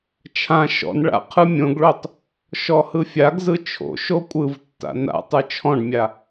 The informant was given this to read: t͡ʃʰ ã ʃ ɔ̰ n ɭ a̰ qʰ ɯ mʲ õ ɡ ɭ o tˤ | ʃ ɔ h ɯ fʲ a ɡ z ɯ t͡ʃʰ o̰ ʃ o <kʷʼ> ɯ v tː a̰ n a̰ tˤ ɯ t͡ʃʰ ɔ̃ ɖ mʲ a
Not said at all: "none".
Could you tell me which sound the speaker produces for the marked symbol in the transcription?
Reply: kʷʼ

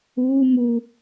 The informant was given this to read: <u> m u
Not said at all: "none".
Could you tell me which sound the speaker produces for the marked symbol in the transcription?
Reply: uː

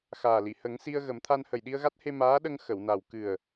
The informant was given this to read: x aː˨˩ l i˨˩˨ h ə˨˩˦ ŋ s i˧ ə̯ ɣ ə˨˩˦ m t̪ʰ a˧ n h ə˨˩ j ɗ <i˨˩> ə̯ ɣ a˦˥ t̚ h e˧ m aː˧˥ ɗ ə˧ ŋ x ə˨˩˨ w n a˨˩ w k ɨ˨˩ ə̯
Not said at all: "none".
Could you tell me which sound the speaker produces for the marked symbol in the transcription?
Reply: i˧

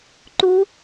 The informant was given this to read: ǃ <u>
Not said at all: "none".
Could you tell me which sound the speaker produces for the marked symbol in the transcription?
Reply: u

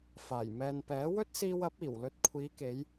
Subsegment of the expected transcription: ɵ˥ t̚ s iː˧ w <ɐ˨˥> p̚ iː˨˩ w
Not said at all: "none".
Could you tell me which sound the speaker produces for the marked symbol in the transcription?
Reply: ɐ˨˥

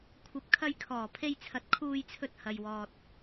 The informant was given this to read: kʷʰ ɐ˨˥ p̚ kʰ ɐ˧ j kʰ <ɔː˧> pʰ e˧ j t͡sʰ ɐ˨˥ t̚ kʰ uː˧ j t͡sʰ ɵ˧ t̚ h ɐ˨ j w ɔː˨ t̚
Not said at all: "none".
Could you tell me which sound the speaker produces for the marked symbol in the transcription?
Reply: ɔː˨˩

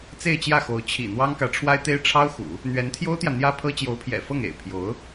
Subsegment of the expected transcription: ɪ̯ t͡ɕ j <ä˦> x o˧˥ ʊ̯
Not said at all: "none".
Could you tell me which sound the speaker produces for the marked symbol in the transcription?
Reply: ä˥˩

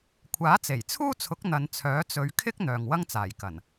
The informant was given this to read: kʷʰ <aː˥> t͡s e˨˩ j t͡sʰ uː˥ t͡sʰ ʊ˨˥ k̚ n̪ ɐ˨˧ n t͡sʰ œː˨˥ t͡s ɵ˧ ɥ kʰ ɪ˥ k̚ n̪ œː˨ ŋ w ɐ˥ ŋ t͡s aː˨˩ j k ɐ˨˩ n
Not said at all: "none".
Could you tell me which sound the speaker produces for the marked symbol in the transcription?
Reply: aː˨˥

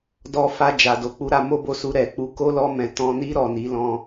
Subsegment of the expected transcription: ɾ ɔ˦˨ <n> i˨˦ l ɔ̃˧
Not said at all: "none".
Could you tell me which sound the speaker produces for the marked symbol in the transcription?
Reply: n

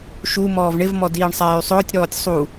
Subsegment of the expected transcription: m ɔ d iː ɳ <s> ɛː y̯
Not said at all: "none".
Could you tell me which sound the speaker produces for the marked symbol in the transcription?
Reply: sˤ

